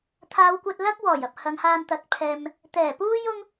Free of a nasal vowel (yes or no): yes